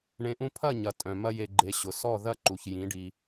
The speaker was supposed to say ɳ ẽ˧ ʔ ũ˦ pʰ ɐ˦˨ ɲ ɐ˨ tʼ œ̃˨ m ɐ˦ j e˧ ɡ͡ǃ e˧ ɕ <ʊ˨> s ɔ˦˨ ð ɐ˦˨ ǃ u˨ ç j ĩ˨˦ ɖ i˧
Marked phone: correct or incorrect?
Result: correct